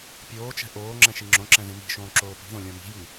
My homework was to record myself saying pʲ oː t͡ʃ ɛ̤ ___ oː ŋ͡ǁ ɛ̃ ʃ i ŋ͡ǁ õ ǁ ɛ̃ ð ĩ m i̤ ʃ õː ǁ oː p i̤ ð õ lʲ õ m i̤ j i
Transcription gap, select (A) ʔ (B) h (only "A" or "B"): A